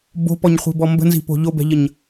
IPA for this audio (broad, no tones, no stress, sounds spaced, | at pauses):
b o̤ p ɔ ɲ χʷ i̤ b ɔ m b ə̤ n z i̤ p o̤ ʎ o b ɛ̤ ʎ ə ɲ